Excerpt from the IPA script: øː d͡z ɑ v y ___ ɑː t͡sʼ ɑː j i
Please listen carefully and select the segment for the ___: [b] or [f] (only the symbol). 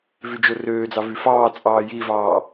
f